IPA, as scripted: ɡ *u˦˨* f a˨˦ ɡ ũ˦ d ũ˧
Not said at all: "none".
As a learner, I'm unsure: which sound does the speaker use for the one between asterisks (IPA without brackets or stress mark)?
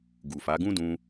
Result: u˨